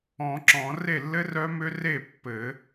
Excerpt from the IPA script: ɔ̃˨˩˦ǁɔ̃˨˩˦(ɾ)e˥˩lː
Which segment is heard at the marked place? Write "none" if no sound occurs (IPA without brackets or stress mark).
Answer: r